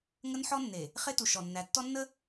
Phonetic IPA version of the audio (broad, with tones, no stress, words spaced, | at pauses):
ŋə˦n ħɔ˦nːe˨ | χe˦ tu˨ʃɔ˨nːæ˨˦ tːɔ˦nːə˦